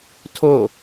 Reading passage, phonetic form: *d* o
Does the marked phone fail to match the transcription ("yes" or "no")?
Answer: yes